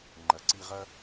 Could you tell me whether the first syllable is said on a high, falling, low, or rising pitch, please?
low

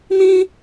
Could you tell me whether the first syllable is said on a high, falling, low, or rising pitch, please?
high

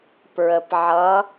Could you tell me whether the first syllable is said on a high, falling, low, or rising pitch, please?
low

